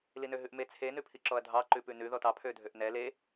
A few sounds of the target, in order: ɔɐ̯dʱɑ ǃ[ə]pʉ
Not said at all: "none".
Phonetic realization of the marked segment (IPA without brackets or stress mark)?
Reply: ʉ